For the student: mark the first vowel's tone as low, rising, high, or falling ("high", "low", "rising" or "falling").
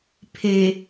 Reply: low